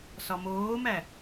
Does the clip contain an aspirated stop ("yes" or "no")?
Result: no